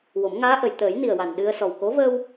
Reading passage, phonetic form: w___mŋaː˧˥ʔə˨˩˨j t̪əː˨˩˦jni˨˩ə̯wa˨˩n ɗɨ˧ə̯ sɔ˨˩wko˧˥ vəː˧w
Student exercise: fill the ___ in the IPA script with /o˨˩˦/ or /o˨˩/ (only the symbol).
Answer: o˨˩˦